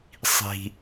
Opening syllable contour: low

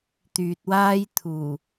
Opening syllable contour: low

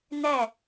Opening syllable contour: falling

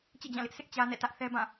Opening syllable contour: falling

